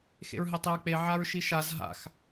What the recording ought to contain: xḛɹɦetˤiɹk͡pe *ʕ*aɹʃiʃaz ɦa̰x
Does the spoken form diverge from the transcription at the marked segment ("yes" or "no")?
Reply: no